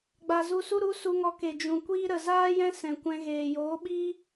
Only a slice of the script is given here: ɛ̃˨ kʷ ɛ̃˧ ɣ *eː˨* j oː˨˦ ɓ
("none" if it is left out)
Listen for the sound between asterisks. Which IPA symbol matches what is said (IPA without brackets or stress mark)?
eː˨